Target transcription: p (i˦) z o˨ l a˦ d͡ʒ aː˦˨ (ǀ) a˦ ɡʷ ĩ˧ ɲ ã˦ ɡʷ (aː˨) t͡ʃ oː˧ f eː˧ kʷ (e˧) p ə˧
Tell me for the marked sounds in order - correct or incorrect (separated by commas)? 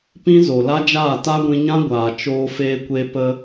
incorrect, incorrect, correct, correct